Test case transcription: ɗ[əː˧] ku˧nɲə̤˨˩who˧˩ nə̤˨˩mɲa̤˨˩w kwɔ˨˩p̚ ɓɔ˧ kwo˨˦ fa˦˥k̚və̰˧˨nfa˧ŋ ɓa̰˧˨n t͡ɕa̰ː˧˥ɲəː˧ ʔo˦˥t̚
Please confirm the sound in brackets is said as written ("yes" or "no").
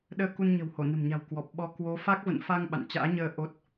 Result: yes